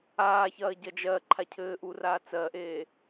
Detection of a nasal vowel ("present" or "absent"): absent